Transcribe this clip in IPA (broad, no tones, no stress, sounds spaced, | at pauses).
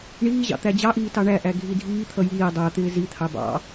ɳ iː ʑ ɑ̰ t̪ æ d͡ʑ ɑ ʔ iː t ɑ ɳ æ ʔ æ ɡʱ i dʱ iː t̪ʰ ʌ j iː dˤ æ t̪ ɪː z i t̪ʰ ɑ b ɑ̰